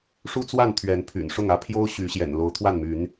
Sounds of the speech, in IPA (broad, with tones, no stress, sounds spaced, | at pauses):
ʂ u˦ t͡s w a˥˨ n t̪ʰ ɥ ɛ˨˦ n pʰ y̰˨˩ n ʂ ʊ˥˨ ŋ ä˦ pʰ j o˦ ʊ̯ ɕ y˨˦ ɕ j ɛ̰˨˩ n l o˨˦ ʊ̯ t̪ʰ w a˥˨ n m y˨˦ n